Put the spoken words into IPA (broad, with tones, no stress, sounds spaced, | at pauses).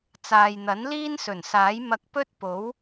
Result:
t͡s aː˨ j n̪ ɐ˨˥ n l iː˥ n s ɵ˨˩ n s aː˨˥ j m ɐ˧ k̚ p ɵ˥ t̚ p o˨˥ w